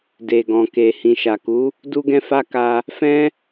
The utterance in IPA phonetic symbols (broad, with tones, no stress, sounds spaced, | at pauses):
d e˨ ɡ ɔ̃˨ k e˨ h ĩ˨ ʃ a˨ k u˨˦ | d u˦ ɡ ɛ̃˦ f a˦ k a˧ | f ɛ̃˦